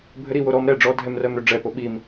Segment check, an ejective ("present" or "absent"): absent